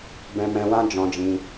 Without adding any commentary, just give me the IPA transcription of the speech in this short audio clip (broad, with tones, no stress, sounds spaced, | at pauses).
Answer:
b ɛ̃˧ m ɛ̃˧ w ã˦ d͡ʒ ɔ̃˧ d͡ʒ ĩ˧